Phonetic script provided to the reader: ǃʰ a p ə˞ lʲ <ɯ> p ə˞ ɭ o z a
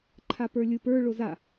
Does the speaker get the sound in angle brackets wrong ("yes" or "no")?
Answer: no